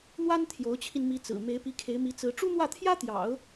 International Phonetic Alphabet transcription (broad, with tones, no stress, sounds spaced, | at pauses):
n̪ w a˥ n t̪ʰ j o˧˥ ʊ̯ t͡ɕʰ i˧ n m i˧˥ t͡s ɹ̩˨˩ m e˧˥ ɪ̯ p i˧˥ kʰ e˧˥ ɪ̯ m i˧˥ t͡s ɹ̩˧˥ ʈ͡ʂ u˥ n̪ w ä˥˩ t̪ʰ j ä˥ t̪ j ɑ̰˨˩˦ ʊ̯